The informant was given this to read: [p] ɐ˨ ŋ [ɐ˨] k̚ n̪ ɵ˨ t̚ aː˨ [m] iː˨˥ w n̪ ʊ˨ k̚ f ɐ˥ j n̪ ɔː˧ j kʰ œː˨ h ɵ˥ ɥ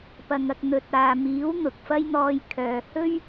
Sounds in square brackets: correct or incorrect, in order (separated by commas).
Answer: correct, correct, correct